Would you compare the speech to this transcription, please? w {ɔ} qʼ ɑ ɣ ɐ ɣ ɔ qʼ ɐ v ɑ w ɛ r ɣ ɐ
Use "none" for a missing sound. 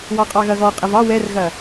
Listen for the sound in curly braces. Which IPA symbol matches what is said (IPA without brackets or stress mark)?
ɑ